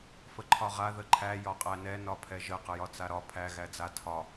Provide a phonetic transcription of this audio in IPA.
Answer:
f ə ǃʰ ɒ ʁ a ð ə ǃʰ æ j ɒ qʼ æ n ɛ n ɒ pʰ ɛ ʒ ə q ə j ɒ t͡s a ɾ ɒ pʰ æ ɣ æ d͡z a tʰ ɒ

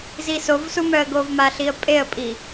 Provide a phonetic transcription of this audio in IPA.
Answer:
z i s o v s u m œ ə̯ ɡ o v m a ɬ i ə̯ pʼ e ə̯ pʼ i

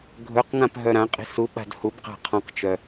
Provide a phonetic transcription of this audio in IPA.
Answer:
ɡʱ ɵ q ŋ ã p ɦ œ ɾ ã qʼ i̤ s u ɓ a̤ d h u b q a̤ qʰ ɔ̃ q t͡ʃ œ

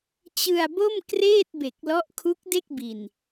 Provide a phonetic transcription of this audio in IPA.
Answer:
t͡ɕ ɯ˧ a̯ b o˥˩ m k r eː˥˩ t̚ b e˨˩ k̚ l ɔ˦˥ ʔ kʰ u˦˥ k̚ d e˥˩ k̚ b i˨˩ n

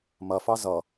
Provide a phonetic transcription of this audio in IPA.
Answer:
m ɐ f ɑ z ʌ

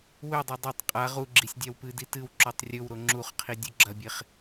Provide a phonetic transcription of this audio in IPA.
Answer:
w ɵ dˤ e dˤ o tˤ qʼ a ʁ u ɡ͡ǁ i sʲ dʲ a w p ɨ d i t ɨ w ǁ o tˤ rʲ ɵ w ɾ o ŋ͡ǁ u χ qʰ i dʲ u ɡ͡ǁ ɐ bʲ e χ

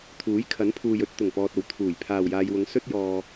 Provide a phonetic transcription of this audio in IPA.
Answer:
t̪ʰ uː˨˥ j kʰ ɐ˨˥ n pʰ uː˨ j ɵ˨ t̚ t̪ ʊ˨˩ ŋ p ɔː˨ t̚ o˨˩ w t̪ʰ uː˨˩ j pʰ aː˨˩ w j aː˨ j w ʊ˨˥ ŋ s ɵ˥ t̚ j ɔː˧

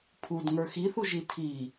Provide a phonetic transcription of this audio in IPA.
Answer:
pʰ u d ŋ ə˞ x i θ u ʒ i tʰ i

